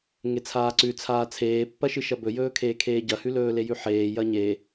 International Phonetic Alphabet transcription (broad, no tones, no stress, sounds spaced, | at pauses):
ŋ e t͡sʰ aː ǀ ʉ t͡sʰ aː t͡sʰ eː pː ɐ ʃ ɨ ʃ ɐ b ɵ j ɵː kʰ eː kʰ eː ɟ ɐ h ʉ l ɵː l e j ʉ ħ eː j ɐ ɲ e